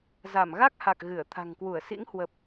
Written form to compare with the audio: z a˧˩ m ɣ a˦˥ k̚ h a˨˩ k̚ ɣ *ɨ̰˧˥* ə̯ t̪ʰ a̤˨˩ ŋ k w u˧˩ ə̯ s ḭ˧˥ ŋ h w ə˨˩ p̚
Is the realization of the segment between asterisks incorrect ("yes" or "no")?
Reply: yes